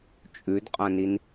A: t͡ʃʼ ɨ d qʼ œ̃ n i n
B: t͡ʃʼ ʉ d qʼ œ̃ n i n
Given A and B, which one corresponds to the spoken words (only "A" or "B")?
B